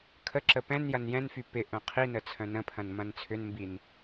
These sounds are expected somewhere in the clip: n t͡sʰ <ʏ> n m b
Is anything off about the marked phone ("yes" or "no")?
no